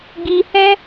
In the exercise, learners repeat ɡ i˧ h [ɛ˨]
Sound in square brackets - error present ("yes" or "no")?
yes